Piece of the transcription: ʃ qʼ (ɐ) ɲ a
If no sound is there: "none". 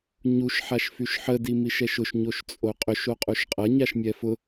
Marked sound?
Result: ɐ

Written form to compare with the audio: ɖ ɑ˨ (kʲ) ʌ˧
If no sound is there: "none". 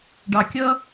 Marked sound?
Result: kʲ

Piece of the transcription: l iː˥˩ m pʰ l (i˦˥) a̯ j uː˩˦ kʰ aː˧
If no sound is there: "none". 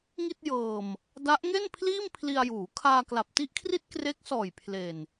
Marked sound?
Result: i˧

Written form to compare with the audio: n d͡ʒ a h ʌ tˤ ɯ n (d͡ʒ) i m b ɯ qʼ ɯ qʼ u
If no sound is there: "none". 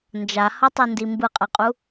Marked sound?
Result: d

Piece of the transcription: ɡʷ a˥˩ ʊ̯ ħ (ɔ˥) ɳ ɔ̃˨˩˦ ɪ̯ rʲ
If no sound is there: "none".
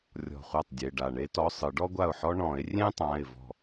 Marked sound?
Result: ɔ˥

